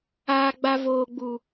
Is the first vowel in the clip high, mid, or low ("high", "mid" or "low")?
low